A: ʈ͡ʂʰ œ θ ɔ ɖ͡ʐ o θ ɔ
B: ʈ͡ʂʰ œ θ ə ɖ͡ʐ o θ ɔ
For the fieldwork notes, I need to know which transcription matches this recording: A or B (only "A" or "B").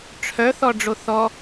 A